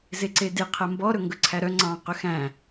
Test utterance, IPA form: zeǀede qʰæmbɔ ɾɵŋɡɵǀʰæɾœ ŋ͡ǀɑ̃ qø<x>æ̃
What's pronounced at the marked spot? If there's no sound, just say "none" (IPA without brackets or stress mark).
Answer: x